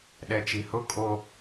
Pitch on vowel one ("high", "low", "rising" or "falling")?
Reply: low